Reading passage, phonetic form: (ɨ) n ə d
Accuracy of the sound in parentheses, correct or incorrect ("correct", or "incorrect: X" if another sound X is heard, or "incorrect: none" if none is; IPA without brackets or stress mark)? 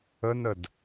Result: incorrect: ə